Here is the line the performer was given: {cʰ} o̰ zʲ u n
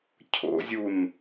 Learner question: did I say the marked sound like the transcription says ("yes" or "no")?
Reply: yes